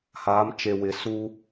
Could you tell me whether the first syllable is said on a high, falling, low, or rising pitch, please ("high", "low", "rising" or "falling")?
rising